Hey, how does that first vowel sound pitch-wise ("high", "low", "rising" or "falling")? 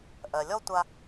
low